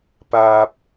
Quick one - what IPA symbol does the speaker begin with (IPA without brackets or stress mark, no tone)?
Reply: p